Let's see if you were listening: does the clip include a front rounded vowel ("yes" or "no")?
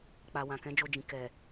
no